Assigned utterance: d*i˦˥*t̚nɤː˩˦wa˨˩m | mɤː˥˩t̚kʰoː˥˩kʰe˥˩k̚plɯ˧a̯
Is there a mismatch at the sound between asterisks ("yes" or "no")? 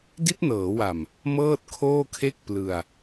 no